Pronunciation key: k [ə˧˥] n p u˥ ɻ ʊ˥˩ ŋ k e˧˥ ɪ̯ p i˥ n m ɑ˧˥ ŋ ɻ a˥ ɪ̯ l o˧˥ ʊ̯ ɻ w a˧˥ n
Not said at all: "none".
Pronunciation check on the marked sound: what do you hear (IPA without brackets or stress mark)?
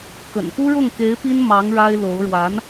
ə̰˨˩